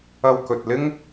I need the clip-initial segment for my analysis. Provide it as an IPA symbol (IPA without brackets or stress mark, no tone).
ɐ